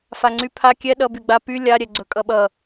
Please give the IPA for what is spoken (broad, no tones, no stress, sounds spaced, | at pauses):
f a ŋ͡ǀ y pʰ a kʲ ɛ ɗ ʌ b y ɡ͡b a p y lʲ a ɾʲ ɛ ɡ͡ǀ ɵ kʼ ʌ ɓ ʌ